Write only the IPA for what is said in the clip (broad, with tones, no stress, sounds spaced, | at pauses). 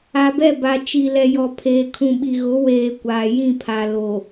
a˨ b ɛ˦˨ b a˨ t͡ʃ i˨ l ɛ˨ j ɔ˨ pʰ eː˨ kʰ ũ˨ ɓ i˨ ɣ ʊ˨˦ w eː˨ kʷ aː˨ j ĩ˦˨ pʰ a˨ l o˨